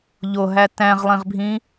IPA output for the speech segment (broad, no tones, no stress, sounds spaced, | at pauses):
ʎ o ɦ æ t æ̃ ʁ lˠ ĩ ʁ bʱ ĩ